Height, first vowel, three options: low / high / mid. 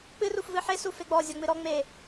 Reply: high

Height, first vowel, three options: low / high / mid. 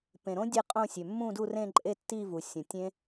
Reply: mid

